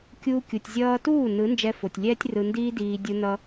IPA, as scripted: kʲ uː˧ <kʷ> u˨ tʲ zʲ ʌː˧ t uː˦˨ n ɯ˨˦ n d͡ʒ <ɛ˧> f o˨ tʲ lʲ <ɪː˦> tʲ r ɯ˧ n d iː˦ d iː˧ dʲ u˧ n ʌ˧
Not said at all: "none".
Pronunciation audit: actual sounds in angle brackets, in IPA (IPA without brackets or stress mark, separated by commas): kʲ, ɛ˧, ɛː˦